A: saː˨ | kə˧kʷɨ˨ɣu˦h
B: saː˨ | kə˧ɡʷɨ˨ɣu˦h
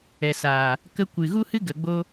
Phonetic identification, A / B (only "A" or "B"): A